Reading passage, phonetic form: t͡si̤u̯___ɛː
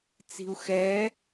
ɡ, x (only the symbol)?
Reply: x